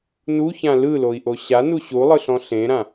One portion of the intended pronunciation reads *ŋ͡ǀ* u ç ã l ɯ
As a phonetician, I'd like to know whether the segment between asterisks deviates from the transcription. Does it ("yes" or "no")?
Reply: yes